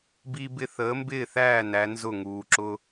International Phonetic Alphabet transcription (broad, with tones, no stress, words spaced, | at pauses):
bi˥bɪ˥ θəː˨˥mbɪː˥˨θæː˥˨ næ˨˥nzʊ˥˨ŋuː˨ǁʊ˥